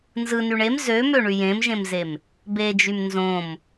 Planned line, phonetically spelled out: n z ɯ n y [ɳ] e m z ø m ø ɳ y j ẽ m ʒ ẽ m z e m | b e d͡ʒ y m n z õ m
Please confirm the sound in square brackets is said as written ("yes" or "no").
yes